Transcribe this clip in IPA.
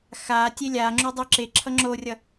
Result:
x a tʲ e lʲ a ŋ͡ǁ u dˤ ɯ ǁ e ǁʰ ʌ ŋ͡ǁ o rʲ ʌ

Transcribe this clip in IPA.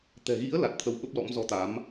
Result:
t̪ ɛ̤˨˩ ɣ ḭ˧˥ ə̯ l a˨˩ t̚ t̪ʰ ə˧ w ɓ ə˦˥ p̚ l ɔ̰˧˥ m z ɔ˨˦ t̪ a˨˦ m

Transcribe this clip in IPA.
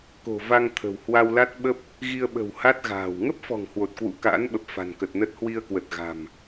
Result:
k o̤˨˩ v a˧ ŋ t̪ʰ ə̤˨˩ w h w a˧ w l a˦˥ t̚ ɓ ə˦˥ p̚ | ɣ i˧ ə̯ ɓ ə̤˨˩ w h a˦˥ t̚ ɣ a̤ː˨˩ w ŋ ə˦˥ p̚ f ɔ̤˨˩ ŋ h w o˨˩ t̚ k w ṵ˧˥ k a̰ː˧˥ n ɓ ə˨˩ p̚ f a̤˨˩ n k ə˨˩ t̚ n ə˦˥ t̚ h w i˧ ə̯ k w ə˨˩ t̚ ɣ a̤˨˩ m

